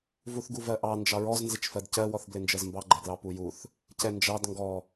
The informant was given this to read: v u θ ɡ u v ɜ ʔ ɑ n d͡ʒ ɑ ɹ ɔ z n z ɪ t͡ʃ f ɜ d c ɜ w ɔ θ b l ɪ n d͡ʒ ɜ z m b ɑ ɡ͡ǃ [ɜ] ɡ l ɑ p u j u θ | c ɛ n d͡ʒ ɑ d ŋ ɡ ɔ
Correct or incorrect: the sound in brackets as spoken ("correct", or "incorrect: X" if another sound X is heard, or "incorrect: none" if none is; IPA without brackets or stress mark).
incorrect: ɛ